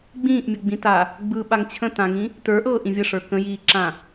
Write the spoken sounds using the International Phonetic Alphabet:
ɡ͡b ĩː ʔ mʲ ə ɡ͡b ĩ t a | ɡ͡b ɯ ɓ a ŋ t͡ɕʰ ə̃ t ã ŋ ĩ | t ə˞ ʔ ɤː ʔ ĩ vʲ ə ʂ ə˞ k ə̃ j iː ǁ ã

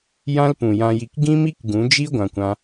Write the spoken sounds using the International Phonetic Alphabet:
j ã˦ l p ũ˨ j ã˧ j i˧ k ɡ ĩ˦ m i˦ k ɡ ũ˨˦ d͡ʒ i˦ ɡʷ ã˧ kʷ ã˦

